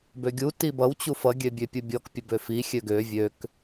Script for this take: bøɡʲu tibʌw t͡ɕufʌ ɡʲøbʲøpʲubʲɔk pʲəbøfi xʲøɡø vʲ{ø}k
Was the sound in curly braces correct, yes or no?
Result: yes